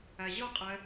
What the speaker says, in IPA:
æ ʑ ʌ qʼ ɛ

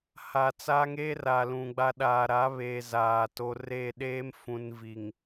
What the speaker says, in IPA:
h a˨ t͡s a˦ ŋ eː˦ r a˨ l ũ˨ ɡ͡b a˦ ɗ aː˨ ɾ a˨˦ β eː˨ z aː˨ t o˨˦ r e˦˨ ɗ eː˦ m f ũ˨ n v i˨ ŋ

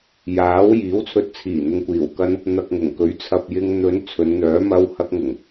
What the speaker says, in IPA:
j aː˨˥ w j iː˨˥ w t͡sʰ ɵ˧ t̚ t͡sʰ iː˨˩ n̪ ʊ˨ ŋ kʷ iː˨˩ w k ɐ˥ n | n̪ ɐ˨ k̚ ŋ ʊ˨˩ ŋ k ɵ˨˥ ɥ t͡sʰ ɐ˨ p̚ j ɪ˧ ŋ n̪ ɵ˨˧ n t͡sʰ ɵ˨˧ n n̪ œː˨˥ m ɐ˧ w h ɐ˧ k̚ ŋ ʊ˨˩ ŋ

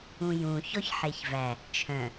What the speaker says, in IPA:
ũ j ũ ç ɔ ç ħ e ç v æ | t͡ʃʰ œ̃

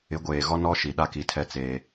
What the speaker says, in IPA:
ɪ˨˦ ɡʷ eː˨ ɣ ɔ˦ n ɔ˦ ʃ i˨ ɗ a˦ k i˨ tʰ ɛ˦ t͡s eː˦

